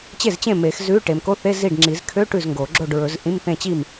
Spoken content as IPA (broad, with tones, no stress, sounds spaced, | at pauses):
t͡ɕ e˥˩ z t͡ɕ ẽ˥˩ m e˨˩˦ x z ʉ˧˥˧ ʈ e˨ m k o˧˥˧ θ e˧˥˧ z i˥˩ ɖ ŋ͡ǁ i˨˩˦ z kʰ ø˧˥˧ ʈ ʉ˥˩ z ŋ ɡ o˨˩˦ ɡ͡ǁ o˥˩ ɖ ɹ ɵ˨˩˦ z ʔ ĩ˧˥˧ m θ ẽ˥˩ t͡ɕ i˥˩ m